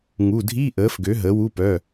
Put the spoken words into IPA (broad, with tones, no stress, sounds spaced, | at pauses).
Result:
ŋ u˩˧˩ dʱ i˧˥˧ ʔ əː˩˥ f ɡ ø˩˥ ɦ əː˩˥ w u˧˥˧ p œ˩˧˩